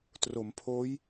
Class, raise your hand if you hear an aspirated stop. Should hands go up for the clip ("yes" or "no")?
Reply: yes